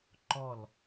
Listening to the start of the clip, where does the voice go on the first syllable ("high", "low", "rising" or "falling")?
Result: falling